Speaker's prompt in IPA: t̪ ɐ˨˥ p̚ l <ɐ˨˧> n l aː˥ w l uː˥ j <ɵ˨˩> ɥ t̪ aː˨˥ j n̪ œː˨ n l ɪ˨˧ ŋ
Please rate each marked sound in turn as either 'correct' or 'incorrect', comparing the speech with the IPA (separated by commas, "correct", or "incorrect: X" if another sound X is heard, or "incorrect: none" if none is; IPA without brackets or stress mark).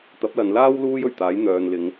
correct, correct